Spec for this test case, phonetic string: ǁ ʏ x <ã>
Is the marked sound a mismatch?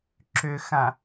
no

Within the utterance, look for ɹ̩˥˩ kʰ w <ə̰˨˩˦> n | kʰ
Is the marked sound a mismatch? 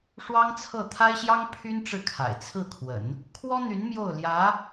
no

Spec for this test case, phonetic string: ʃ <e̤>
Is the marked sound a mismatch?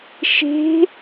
no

